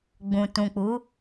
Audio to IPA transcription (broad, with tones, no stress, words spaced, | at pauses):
ɡ͡bũ˨ tũ˨k͡pu˨˦